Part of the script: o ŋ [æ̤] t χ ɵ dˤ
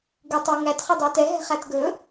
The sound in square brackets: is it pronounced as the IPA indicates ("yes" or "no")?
no